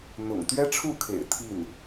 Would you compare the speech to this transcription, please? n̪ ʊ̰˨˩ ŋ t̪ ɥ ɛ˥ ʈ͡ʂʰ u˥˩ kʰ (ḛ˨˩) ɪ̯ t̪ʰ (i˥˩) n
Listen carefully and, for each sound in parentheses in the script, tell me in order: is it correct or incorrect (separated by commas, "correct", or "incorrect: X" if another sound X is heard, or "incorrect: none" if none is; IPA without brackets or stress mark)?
correct, correct